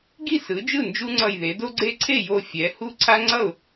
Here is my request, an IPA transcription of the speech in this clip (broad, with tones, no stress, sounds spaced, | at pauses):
ɡ i˥˩ s ɯ˩˥ d͡ʒ ɯ˥˩ n d͡ʒ u˦ ŋ͡ǀ ʌ˧˩ j ð e˩˧ d o˦ ɡ͡ǀ e˦ ǀʰ e˥˩ j o˧˩ fʲ ɛ˩˧ h u˦ ǀʰ a˦ ŋ͡ǀ ʌ˥˩ ʊ̯